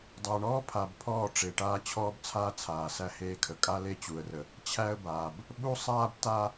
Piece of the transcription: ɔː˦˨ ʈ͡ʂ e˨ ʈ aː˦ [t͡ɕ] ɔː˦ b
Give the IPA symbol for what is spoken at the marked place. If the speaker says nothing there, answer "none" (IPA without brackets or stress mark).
t͡ɕʰ